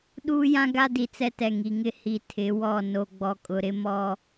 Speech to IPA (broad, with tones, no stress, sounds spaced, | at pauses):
ɗ uː˦ j ã˦ ɡ a˦ d i˨ t͡s ɛ˦ t ɛ˨ ŋ i˨ ŋ ɪ˦ h i˨ tʰ ɪ˨˦ w ɔ˦˨ n o˦ ɡ͡b ɔ˦ kʼ ʊ˦ ɾ ɪ˦ m ɔ˦